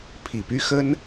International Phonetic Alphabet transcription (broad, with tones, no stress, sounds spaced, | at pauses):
pʰ i˨˩ p y˥ x ə˥ n